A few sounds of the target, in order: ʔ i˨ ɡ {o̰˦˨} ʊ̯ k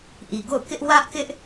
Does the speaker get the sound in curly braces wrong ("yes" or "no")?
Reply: no